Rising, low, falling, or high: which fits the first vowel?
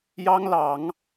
high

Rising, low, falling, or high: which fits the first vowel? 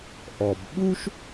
low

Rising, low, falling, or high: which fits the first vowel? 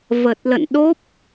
low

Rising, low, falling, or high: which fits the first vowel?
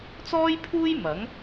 high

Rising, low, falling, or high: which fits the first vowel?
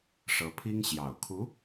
rising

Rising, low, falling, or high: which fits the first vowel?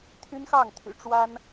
high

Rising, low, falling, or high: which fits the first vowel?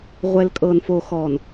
low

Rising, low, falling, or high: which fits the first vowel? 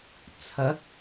rising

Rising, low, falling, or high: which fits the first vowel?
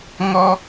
high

